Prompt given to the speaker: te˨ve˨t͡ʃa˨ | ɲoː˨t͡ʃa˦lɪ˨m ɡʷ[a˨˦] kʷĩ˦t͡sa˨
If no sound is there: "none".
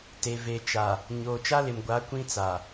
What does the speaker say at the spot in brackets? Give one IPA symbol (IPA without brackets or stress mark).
a˨˦